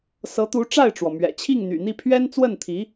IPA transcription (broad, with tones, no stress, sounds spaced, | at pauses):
s ɤ˧˥ t̪ u˧˥ ʈ͡ʂ a˥˩ ɪ̯ ʈ͡ʂ w ɔ˩ m ɥ ɛ̰˨˩ t͡ɕʰ i˥˩ ŋ n̪ y̰˨˩ n̪ i˥˩ pʰ ɥ ɛ˥ n t͡s w ə˥˩ n t̪ʰ i˧˥